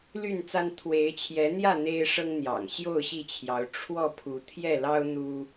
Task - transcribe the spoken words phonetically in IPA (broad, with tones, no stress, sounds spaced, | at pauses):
l y˥˨ n t͡s a˦ n t̪ʰ w e˨˦ ɪ̯ t͡ɕʰ j ɛ˨˦ n̪ j ä˥˨ n̪ e˦ ɪ̯ ʂ ɤ˦ ŋ n̪ j ɑ̰˨˩ ŋ ɕ j o˥˨ ʊ̯ ɕ i˥˨ t͡ɕʰ j ɑ˨˦ ʊ̯ ʈ͡ʂʰ w ɔ˥˨ pʰ u˨˦ t̪ʰ j ɛ˥˨ l ɑ˦ ʊ̯ n̪ u˦